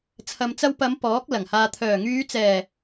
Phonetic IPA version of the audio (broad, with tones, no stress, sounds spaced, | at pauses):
t͡sʰ ɐ˨ m t͡s ɐ˧ w p ɐ˨˧ m p ɔː˨˥ k̚ l ɐ˨˩ ŋ h aː˨ t̪ʰ œː˨˩ ŋ yː˨˧ t͡s ɛː˨˩